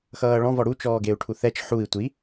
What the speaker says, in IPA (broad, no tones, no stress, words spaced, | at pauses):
xʌːɭɔ̃ vɔɽu t͡ʃɔːɡeu̯ʈʰuθɛt͡ʃ ħui̯ tʷi